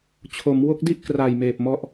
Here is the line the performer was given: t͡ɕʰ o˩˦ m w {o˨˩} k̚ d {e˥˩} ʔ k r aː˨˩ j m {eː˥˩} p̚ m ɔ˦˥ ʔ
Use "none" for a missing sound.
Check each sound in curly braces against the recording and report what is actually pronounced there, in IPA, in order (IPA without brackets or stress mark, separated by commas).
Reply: o˦˥, i˥˩, eː˨˩